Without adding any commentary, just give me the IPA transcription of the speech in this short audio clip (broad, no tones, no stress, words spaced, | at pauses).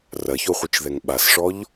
rɐçoχʷɯt͡ʃðɛŋ ɓasʂɔʎ